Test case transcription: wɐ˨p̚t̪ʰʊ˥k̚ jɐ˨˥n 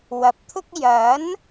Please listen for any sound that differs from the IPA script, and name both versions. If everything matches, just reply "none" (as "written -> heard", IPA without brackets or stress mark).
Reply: none